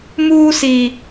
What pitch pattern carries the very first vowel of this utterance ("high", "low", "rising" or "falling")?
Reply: high